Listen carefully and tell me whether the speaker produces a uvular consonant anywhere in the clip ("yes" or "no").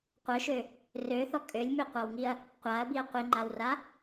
yes